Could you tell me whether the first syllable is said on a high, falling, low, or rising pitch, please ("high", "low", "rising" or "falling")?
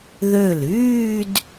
falling